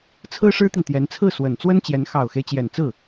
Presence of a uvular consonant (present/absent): absent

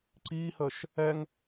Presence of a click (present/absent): present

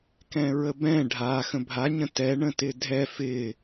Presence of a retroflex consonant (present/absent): present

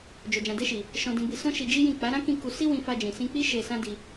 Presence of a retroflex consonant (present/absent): absent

